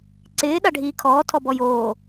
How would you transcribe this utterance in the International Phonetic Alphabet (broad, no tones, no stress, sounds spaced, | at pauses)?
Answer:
ǀ ɪː ɗ a ɖʱ iː kʰ ɔː tʰ ɔ b ɔ j oː